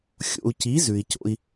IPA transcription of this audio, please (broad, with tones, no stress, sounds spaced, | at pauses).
xʲ o̰˨ u̯ c i˨˦ z ʉ˨ i̯ c o̰˦ i̯